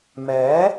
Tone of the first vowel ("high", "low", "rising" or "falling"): rising